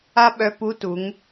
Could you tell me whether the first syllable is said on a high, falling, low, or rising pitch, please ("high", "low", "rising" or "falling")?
high